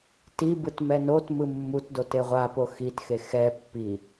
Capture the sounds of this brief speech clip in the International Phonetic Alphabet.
t i b ɯ t m ɛ n o t m ɯ mː u t d o t e ʁʷ a p o x i t x e x ɛ pː i

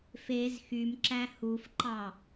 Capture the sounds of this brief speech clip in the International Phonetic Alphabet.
f e z x y m ǁ æ h u f ǃ ɑ

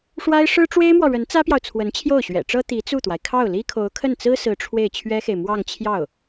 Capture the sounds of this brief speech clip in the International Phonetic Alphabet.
ʂ w a˥ ɪ̯ ʂ ɻ̩˥ ʈ͡ʂ w e˥ ɪ̯ m w ɔ˨ ɻ ə˧˥ n t͡s ä˥ p j ɑ˨ ʊ̯ t͡sʰ w ə˧˥ n t͡ɕʰ j o˥˩ ʊ̯ ɕ ɥ ɛ̰˨˩ ʈ͡ʂ ɤ˥ t̪ i˧˥ t͡s u˥˩ t̪ w a˩ ɪ̯ kʰ ɑ˥˩ ʊ̯ l i˥ kʰ o˧˥ ʊ̯ kʰ ə˥˩ n t͡s ɹ̩˥ s ɹ̩˧˥ ʈ͡ʂʰ w e˥˩ ɪ̯ t͡ɕʰ ɥ ɛ˥ x e˨ ɪ̯ m w ɑ˥˧ ŋ t͡ɕʰ j ɑ˥˩ ʊ̯

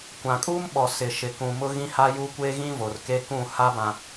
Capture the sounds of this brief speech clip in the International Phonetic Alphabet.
kʷ ã˨ kʼ uː˦ m ɓ ɔ˨ s ɪ˨ ʃ ɪ˨ k ũ˨ m ʊ˦ ɣ ĩ˦ h a˦ j u˦ kʷ e˦ ɣ ĩ˦ v o˨ r k e˦ k ũ˦˨ h a˦ b ã˨

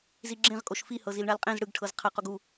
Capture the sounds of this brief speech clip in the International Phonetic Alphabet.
z i ɡ͡ǁ ẽ ʁ kʼ o ʃ f i h ɤ z i l ɳ a l qʼ ẽ z ɽ ɯ ɡ ʈʰ ɤ z qʰ a q o ɡ u

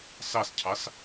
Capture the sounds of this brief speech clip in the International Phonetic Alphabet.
s ɑ s cʰ ɑ s

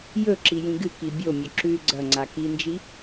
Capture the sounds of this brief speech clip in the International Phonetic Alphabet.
j ɵ ǁ i j ĩ ɡ ɨ k i bʲ o mʲ ɵ ǁ ʉ ɡ͡ǀ ɐ ŋ͡ǀ a k i n d͡ʒ i

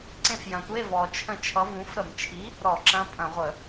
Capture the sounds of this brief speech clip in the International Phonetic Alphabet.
ǀ ẽ˦˨ f j ɐ̃˨˩ tʷ e˧˥˧ v ɔ˨˩ t͡ʃʰ ə̃˦˨ t͡ʃʰ ʌ˨˥ v ũ˨˥ f ɾ ə˧˩˧ m t͡ʃʰ i˨˥ | ɾ ɔ˧˩˧ ǁ ɐ̃˧˥˧ pʼ ɐ̃˧˩˧ ʁʷ ə˧˩˧

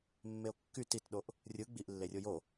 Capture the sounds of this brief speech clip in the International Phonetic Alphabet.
mː e o̯ kː y t i t ɗ o ʔ | rʲ ɯ ɡ͡b i ʔ lː e rʲ o j o

